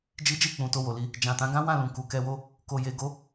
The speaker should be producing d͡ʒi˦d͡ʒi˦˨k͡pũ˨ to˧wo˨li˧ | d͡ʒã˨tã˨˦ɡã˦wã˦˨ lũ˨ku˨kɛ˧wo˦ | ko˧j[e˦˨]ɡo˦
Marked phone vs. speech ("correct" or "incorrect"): incorrect